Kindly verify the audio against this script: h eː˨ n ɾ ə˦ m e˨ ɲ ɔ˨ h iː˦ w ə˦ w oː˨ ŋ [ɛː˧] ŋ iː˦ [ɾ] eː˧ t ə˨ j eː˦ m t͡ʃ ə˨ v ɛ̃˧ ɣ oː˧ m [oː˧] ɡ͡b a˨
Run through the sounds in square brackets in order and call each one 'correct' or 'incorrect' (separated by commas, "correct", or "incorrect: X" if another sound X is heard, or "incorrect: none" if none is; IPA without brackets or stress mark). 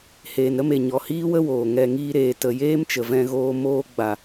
incorrect: ɛ˧, correct, correct